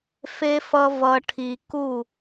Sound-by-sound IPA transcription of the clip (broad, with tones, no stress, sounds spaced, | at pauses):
f e˧ f ʌ˧ v ʌ˧ ʈʰ i˧ k u˥˧